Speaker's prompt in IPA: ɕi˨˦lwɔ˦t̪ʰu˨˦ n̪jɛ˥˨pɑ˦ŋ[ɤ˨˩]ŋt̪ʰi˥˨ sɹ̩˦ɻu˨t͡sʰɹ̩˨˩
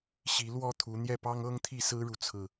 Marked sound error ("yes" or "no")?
yes